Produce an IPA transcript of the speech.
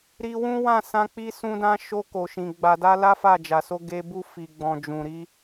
ɾ i˧ w ũ˦ w ã˦˨ s ã˧ k͡p i˧ s ũ˧ d ã˧ ʃ o˧ k o˨ ʃ ĩ˨ ɡ͡b a˨ d a˧ l a˦ f a˦˨ d͡ʒ a˨ s o˧ ɡ e˧ b u˧ f i˨ ɡ͡b ɔ̃˨ d͡ʒ ũ˨ ɾ i˧

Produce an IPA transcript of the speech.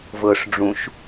v ɤ ʂ ɖ͡ʐ ũ ʃ

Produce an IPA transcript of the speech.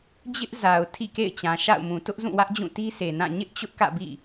d͡ʑ ɪ˦ ʔ z a˨ ʊ̯ tʰ ḭ˦˨ k ḛ˦˨ ɪ̯ t͡ɕ ã˨ ʃ a̰˦˨ ʊ̯ m ũ˨ t ʊ˦ ʔ z ũ˦˨ w ä˦ ʔ d͡ʑ ũ˦˨ t i˦ sʰ e˨ n ã˦˨ ɲ ɪ˦ ʔ t͡ɕ ʊ˦ ʔ k ä̰˦˨ b ḭ˦˨

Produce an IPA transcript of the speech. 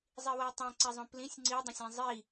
zˤ i w ɜ tˤ ɛ̃ ǀ ɛ zˤ õ p l ĩ sʲ ŋ͡ǀ i dˤ õ sʲ ɛ̃ zˤ i

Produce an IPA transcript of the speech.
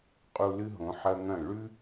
qʼ u˧ l ɨ˦ ɦ õ˨˦ ħ ɐ˧ ŋ ɐ̃˦˨ ɭ ʉ˦

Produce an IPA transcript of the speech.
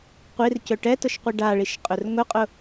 qʷ i r c ɵ ʈ ɛ t ʊ ʃ qʷ i ɖ a ɭ i ʃ qʼ ɵ r ŋ ʊ qʼ ʊ

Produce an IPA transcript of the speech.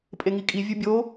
pʼ e ŋ i kʼ i vʲ u bʲ o

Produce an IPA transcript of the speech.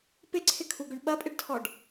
p ɪ ǀʰ ɪ kʰ u ɡ ʏ ɳ ɓ ɐ pʼ ɪ ɖ tʰ ɔ ɖ

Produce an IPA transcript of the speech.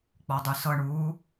k͡p ɔ dˤ ʉ s ɤ ɳ uː

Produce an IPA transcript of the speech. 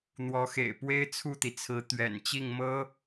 n̪ w ɔ˧˥ x ḛ˨˩ ɪ̯ p w e˥ ɪ̯ t͡sʰ u˥˩ t̪ i˩ t͡sʰ ɹ̩˧˥ t̪ ɥ ɛ̰˨˩ n t͡ɕ i˥˩ ŋ m ɤ˥

